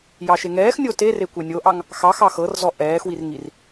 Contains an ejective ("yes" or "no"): no